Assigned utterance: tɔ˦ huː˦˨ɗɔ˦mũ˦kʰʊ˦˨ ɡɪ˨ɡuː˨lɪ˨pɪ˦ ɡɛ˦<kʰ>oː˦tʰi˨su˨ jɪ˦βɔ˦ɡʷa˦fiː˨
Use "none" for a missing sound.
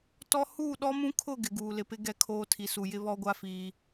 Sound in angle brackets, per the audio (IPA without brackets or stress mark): kʰ